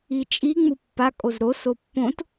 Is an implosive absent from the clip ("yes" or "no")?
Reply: yes